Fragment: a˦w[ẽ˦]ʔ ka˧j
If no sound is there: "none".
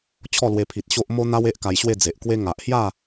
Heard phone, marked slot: e˦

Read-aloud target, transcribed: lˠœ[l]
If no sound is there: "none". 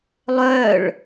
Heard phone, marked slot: ɭ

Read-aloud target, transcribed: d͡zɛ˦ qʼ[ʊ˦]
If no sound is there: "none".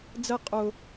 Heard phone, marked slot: ʊ˦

